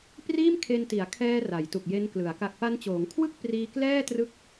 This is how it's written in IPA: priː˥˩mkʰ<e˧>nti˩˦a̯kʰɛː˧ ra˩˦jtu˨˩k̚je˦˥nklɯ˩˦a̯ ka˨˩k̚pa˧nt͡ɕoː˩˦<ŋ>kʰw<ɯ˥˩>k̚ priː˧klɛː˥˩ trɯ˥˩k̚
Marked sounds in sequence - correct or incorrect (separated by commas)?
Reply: correct, correct, correct